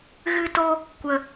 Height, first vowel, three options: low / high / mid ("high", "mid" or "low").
high